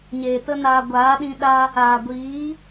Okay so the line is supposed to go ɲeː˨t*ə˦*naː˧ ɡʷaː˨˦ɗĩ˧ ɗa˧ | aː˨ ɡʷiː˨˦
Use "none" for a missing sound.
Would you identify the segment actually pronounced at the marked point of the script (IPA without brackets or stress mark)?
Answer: ə˦